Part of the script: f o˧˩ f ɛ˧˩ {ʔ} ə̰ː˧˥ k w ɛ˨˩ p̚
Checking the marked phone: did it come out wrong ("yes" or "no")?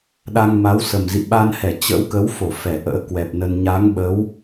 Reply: no